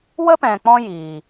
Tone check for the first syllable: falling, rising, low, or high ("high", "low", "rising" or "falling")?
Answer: high